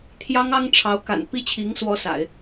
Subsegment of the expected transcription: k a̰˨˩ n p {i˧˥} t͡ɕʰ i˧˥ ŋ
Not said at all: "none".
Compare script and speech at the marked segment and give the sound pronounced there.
i˥˩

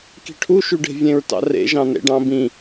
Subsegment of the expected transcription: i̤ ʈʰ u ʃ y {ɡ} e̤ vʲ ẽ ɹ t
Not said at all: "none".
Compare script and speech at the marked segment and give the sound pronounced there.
ɖ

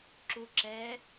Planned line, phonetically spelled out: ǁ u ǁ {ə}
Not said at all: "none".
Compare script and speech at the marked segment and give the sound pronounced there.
ɛ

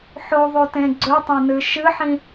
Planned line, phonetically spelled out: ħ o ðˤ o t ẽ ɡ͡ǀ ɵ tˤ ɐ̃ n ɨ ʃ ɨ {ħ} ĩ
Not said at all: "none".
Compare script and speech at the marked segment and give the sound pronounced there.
ħ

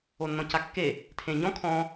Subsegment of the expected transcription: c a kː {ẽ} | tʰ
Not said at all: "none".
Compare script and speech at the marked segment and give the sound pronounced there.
e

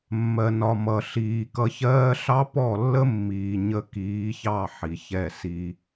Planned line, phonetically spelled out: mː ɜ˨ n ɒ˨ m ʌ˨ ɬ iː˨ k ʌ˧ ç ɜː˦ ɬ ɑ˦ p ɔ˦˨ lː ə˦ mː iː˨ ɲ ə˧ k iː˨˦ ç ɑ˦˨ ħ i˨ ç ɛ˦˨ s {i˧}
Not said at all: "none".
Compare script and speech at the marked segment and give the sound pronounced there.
i˧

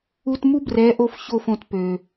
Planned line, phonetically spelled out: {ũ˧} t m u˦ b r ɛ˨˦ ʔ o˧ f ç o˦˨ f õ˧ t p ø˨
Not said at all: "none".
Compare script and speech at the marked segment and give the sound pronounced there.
u˧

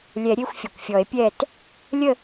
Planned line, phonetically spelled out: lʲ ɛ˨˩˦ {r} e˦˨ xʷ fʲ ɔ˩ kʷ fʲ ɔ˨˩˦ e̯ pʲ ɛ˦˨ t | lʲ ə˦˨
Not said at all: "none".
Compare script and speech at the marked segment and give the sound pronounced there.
ɾʲ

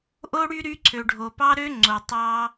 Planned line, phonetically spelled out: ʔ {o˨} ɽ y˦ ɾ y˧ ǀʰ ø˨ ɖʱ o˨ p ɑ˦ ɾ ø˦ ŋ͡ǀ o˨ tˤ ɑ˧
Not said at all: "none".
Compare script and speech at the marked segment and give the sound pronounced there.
o˦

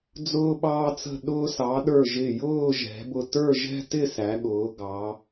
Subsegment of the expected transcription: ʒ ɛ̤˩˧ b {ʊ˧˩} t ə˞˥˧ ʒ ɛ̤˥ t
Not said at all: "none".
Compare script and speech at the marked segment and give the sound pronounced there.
ʊ˧˩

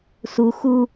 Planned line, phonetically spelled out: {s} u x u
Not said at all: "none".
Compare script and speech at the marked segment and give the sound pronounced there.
s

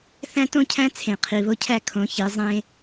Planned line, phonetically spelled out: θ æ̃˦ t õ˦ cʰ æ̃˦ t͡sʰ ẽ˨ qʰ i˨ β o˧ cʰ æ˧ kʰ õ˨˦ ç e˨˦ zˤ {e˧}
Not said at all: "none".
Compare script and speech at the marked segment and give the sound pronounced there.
ẽ˧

